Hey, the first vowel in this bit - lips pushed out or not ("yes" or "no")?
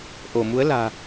yes